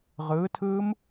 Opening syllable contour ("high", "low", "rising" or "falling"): rising